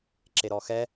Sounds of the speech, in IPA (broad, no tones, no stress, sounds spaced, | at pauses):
ǁ e ɾ ɔ x ɛ